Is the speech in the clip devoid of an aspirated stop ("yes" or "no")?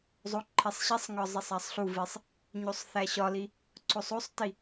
no